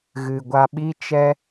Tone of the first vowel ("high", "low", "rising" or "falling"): low